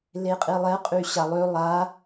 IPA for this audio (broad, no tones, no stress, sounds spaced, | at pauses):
l e qʼ i lˠ ɛ qʼ y ɕ a lˠ ø lˠ a